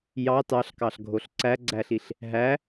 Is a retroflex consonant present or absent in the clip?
absent